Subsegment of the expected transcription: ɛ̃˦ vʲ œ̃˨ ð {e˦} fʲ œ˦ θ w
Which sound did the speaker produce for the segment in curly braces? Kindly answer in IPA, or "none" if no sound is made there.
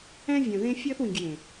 ẽ˦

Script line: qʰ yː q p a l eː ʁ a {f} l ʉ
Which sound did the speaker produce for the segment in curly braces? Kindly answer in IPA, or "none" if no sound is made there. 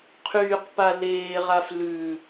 f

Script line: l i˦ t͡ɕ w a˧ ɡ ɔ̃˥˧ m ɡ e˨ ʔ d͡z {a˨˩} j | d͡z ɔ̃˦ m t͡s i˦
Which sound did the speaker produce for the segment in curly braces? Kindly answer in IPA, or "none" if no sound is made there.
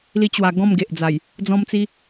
a˨˩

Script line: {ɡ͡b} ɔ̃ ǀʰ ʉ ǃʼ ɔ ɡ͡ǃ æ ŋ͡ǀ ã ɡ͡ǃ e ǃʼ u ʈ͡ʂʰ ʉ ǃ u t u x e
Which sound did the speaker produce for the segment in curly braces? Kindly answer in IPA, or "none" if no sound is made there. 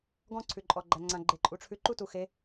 ɡ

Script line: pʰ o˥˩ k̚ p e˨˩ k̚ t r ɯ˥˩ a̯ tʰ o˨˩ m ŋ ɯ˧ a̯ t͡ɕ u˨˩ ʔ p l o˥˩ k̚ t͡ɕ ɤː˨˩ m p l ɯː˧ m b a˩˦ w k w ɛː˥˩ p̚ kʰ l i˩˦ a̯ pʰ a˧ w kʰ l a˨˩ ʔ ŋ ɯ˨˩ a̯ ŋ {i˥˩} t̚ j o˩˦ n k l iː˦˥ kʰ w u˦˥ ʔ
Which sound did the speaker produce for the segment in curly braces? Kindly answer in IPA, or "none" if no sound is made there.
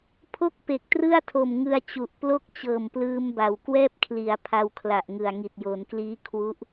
i˨˩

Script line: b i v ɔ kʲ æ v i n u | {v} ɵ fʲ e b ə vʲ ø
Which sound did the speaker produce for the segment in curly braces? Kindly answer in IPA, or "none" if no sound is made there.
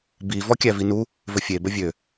v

